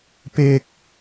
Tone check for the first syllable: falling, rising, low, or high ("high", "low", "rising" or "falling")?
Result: high